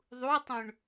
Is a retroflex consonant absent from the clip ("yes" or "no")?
no